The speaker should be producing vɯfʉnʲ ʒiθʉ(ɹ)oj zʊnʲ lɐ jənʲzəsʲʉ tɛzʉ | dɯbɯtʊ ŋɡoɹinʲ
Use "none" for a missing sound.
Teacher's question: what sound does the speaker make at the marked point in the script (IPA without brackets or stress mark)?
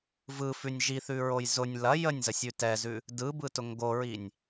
ɹ